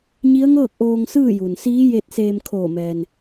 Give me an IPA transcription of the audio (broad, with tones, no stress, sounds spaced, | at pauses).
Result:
ɲ i˧˥ ə̯ ŋ ɤː˥˨ k̚ ʔ oː˧ ŋ s ɯː˥˨ j u˩ n s iː˧˥ j e˧ t̚ s eː˧ m kʰ oː˧˩ m ɛː˩ n